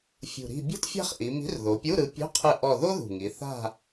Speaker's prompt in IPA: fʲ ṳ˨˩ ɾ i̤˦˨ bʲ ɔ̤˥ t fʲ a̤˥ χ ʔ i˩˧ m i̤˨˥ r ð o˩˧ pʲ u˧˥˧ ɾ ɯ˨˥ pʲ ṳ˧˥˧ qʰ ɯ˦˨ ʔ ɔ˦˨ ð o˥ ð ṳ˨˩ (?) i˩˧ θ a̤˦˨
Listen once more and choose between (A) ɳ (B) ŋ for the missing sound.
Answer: B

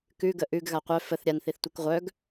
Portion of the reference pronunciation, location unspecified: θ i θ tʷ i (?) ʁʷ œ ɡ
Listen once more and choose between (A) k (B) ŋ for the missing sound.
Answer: A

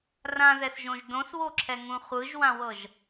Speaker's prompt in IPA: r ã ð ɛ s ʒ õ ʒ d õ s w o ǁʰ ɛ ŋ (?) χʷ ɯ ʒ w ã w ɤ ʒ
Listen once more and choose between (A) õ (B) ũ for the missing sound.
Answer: B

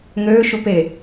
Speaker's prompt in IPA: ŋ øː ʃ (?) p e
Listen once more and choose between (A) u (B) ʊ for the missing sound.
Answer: A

